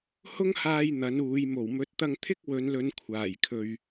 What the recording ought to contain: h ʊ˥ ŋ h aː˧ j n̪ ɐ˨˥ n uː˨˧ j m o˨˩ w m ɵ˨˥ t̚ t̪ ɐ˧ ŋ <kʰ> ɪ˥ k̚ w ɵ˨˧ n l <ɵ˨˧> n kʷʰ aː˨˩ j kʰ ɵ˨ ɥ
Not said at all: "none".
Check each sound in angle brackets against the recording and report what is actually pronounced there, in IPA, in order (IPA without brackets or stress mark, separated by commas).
t̪ʰ, ɵ˨˧